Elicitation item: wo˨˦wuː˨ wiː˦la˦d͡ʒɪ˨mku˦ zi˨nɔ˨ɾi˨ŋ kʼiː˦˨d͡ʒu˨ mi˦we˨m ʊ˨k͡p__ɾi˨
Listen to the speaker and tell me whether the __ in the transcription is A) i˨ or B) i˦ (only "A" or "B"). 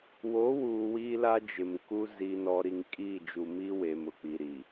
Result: A